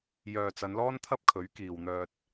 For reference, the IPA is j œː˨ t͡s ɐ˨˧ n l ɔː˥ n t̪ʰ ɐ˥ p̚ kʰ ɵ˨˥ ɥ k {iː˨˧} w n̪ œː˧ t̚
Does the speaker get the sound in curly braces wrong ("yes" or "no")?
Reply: yes